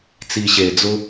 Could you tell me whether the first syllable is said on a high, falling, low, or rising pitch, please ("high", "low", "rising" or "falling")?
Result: low